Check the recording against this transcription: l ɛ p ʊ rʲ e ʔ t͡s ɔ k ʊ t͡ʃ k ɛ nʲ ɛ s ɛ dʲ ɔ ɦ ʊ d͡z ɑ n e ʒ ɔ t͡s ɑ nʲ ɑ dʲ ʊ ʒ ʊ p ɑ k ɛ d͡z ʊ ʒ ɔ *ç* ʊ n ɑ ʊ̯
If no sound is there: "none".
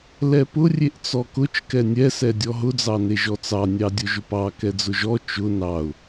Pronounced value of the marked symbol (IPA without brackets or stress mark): t͡ʃ